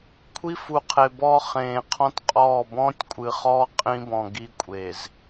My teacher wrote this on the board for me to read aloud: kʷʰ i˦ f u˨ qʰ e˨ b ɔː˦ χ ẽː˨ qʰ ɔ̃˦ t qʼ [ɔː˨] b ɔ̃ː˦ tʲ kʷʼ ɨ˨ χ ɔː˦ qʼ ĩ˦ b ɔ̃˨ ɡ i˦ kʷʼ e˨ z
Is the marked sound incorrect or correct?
incorrect